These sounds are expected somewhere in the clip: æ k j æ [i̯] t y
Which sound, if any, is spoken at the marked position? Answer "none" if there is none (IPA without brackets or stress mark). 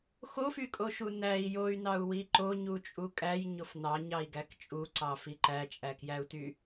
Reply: u̯